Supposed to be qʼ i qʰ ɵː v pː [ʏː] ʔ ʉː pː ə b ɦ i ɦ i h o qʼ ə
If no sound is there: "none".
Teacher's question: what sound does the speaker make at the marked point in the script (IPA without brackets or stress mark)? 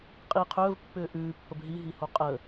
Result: ʏː